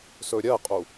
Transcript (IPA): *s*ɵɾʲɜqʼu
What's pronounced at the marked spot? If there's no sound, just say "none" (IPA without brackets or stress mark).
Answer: s